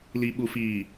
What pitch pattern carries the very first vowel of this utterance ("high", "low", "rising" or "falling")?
low